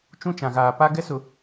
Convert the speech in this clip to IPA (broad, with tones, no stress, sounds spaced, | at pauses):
t͡ʃ ũ˦ t͡ʃ ã˨ ɣ aː˨ p a˦ ɡ ɛ˦ s ʊ˨